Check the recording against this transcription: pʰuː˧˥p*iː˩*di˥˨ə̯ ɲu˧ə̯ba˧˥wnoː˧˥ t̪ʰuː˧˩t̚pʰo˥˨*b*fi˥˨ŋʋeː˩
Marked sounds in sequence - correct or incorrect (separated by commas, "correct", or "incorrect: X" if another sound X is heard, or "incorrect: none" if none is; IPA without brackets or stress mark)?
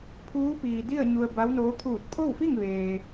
correct, incorrect: w